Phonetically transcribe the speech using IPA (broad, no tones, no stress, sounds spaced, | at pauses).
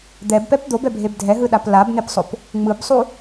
d̪ ɛ b p ɛ p d̪ o b ɛ bʱ e b dʱ ɛ ɦ ɯ ɗ a p l a b n̪ e p sˤ o p | ŋ͡m ɯ b sˤ u